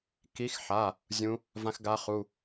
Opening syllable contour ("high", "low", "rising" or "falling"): rising